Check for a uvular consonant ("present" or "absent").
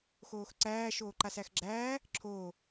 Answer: absent